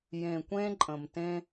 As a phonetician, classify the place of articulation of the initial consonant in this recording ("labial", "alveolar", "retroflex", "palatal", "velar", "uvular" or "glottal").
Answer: palatal